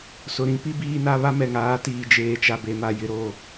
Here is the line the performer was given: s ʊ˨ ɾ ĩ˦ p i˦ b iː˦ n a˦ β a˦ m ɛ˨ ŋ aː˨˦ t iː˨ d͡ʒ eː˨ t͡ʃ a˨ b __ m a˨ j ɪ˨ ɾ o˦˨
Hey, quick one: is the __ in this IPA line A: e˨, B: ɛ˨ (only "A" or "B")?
A